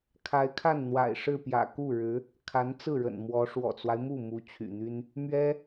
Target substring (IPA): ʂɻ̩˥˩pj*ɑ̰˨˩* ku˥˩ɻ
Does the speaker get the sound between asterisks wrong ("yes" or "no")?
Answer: yes